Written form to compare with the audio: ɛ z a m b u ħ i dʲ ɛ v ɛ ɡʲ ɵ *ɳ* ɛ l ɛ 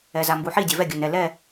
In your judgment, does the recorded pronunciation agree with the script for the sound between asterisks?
no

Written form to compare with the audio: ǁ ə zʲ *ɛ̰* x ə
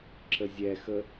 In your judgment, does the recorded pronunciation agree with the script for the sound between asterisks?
no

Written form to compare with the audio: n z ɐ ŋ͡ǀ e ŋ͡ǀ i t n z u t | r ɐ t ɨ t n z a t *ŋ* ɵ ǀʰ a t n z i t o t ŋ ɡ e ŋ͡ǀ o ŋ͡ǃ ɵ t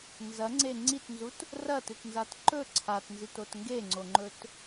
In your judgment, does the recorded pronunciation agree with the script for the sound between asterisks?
no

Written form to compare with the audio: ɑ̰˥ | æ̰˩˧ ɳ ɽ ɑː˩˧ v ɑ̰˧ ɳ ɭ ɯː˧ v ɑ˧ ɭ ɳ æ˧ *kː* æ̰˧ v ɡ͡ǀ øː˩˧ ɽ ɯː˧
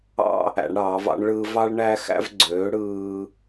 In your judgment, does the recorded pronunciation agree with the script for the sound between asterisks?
no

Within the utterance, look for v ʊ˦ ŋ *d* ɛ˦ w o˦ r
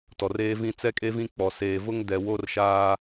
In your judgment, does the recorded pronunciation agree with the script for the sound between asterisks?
yes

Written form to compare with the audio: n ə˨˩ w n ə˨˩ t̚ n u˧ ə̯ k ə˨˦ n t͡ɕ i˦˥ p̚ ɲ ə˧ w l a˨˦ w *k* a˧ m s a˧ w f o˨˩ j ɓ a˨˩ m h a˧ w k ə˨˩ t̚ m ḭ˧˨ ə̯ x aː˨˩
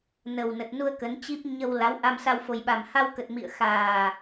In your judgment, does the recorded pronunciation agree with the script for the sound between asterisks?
no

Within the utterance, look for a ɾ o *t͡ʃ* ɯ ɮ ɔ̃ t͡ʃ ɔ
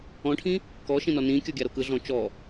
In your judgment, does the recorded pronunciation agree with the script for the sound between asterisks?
no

